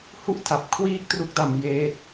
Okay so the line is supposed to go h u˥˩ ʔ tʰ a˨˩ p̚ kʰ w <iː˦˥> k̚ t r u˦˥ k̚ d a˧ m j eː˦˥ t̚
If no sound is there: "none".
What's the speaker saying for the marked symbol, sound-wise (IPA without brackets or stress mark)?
iː˦˥